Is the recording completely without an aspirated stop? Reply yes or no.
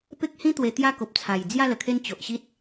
no